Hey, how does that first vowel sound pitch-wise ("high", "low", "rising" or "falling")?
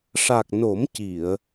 low